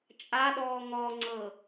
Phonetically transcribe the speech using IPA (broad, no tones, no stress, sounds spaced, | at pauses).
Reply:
t͡ʃʼ a ɗ ɔː ŋ ɔ ŋ͡ǀ ɤ